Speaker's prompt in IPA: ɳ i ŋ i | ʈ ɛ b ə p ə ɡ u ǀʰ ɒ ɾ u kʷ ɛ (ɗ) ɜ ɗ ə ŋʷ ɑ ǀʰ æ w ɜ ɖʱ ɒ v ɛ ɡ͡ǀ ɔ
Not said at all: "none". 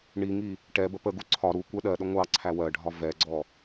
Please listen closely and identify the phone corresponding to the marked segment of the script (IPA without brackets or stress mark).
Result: ɗ